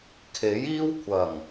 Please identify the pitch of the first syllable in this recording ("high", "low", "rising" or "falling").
rising